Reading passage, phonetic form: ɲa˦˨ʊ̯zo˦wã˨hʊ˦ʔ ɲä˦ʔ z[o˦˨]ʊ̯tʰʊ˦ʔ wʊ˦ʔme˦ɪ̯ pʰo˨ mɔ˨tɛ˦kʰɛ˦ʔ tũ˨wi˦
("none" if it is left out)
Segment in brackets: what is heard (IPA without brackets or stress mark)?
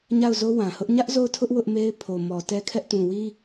o˦˨